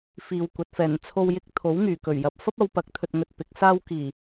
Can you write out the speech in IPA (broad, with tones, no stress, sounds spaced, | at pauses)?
f iː˨ w kʷ ɐ˨˥ t̚ f ɛː˨˩ n t͡sʰ o˧ w j ɪ˧ k̚ t̪ʰ o˨˥ w ŋ yː˨˩ k ɵ˨˩ ɥ j ɐ˨ p̚ f ɐ˥ p̚ ɐ˨˧ w p ɐ˨˥ k̚ t̪ʰ ɵ˧ t̚ ŋ ɵ˧ t̚ p ɪ˨˥ k̚ s aː˧ w k iː˨˩